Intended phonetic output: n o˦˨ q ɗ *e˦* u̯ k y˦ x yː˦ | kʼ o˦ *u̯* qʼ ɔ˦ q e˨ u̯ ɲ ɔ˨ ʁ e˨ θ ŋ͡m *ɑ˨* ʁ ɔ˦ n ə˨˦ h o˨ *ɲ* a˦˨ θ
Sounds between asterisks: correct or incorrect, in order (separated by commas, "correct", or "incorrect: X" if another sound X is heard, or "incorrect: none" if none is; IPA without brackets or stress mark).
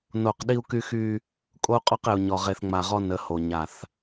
incorrect: i˦, correct, incorrect: a˨, correct